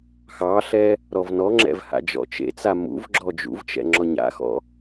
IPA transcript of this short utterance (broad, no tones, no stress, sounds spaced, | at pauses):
x ɑ ɬ ɛ | ɾ ɔ v n ɔ ŋ͡ǁ ɛ̰ v h a̰ d͡ʒ ɔ̰ t͡ʃ ḛ t͡s a m ṵ v ɡ͡ǁ ɔ d͡ʒ ṵ v t͡ʃ ɛ̰ ŋ͡ǁ ɔ ɲ a̰ x ɔ̰